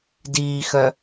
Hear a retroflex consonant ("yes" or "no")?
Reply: no